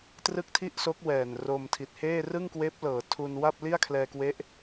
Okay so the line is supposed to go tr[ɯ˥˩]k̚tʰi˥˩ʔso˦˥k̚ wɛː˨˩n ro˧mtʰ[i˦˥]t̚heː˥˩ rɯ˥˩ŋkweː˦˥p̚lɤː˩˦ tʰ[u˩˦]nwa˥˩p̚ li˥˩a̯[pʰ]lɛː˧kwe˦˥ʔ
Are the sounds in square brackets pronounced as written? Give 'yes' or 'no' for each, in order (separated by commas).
yes, no, no, no